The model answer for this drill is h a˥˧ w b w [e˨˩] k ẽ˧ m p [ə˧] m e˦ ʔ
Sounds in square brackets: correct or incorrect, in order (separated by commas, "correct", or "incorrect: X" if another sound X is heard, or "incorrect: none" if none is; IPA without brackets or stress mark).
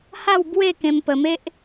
incorrect: e˥˧, correct